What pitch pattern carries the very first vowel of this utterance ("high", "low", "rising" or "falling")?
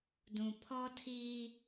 low